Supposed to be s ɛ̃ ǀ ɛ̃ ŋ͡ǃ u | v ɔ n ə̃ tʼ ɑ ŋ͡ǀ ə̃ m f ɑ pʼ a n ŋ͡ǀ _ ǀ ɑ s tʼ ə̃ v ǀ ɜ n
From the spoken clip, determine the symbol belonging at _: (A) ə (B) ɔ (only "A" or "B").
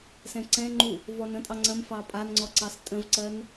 B